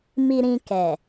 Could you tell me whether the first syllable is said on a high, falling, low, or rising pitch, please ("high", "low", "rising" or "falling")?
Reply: low